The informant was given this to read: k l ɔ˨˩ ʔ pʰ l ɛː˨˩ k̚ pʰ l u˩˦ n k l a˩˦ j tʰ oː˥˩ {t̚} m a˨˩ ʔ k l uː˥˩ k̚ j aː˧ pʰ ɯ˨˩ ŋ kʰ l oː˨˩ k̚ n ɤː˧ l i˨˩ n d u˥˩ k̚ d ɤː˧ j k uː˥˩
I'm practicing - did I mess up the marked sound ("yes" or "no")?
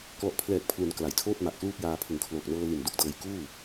no